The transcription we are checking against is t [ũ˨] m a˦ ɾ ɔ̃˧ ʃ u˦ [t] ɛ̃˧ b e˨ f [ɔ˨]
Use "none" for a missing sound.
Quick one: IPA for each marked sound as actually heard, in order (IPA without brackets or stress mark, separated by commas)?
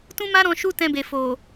ũ˦, t, o˨